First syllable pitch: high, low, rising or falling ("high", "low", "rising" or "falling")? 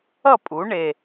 falling